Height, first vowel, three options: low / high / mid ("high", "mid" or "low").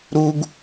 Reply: high